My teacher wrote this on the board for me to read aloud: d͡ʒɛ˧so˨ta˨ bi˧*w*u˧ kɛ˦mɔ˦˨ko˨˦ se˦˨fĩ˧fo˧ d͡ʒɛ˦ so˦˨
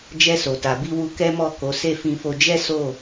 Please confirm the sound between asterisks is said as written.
yes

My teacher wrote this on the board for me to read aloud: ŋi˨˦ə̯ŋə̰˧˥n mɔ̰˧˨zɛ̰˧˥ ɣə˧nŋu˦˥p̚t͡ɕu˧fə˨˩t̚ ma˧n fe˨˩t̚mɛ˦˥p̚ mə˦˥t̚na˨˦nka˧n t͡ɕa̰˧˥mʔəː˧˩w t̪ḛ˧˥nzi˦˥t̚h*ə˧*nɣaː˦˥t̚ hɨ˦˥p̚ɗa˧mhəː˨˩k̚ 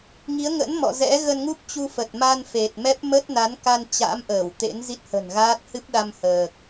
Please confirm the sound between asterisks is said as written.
no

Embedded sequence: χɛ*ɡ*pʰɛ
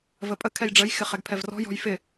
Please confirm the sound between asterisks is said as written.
yes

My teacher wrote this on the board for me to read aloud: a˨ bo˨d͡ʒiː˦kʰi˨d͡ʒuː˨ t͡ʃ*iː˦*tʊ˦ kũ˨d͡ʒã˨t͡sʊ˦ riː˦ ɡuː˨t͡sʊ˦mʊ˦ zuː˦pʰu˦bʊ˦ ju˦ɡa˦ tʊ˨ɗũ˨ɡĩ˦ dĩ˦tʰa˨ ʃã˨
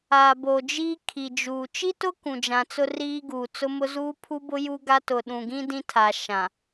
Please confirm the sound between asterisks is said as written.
no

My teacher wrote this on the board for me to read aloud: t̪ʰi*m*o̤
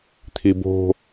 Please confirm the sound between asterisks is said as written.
no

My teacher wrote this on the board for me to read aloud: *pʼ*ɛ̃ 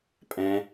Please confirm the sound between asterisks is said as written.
yes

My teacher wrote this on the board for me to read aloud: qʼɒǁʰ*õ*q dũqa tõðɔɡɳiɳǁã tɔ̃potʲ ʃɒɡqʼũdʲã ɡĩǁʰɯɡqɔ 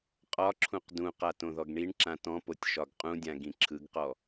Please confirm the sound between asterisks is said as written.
no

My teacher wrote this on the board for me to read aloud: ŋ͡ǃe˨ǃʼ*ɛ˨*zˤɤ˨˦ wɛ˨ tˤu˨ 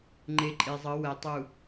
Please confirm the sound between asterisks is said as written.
no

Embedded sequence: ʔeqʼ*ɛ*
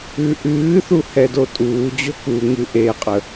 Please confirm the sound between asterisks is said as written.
no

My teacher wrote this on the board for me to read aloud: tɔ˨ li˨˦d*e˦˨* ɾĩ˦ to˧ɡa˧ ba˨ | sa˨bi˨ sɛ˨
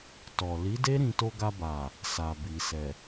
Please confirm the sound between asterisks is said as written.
no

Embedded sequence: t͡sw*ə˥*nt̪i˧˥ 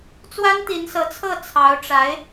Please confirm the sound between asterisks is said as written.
no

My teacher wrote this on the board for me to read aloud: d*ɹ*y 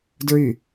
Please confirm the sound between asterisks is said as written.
yes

